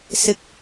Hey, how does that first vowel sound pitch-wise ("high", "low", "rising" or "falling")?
high